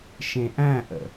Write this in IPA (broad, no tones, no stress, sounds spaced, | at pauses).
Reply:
ʃ ẽ ʔ æ̃ ʔ ə̰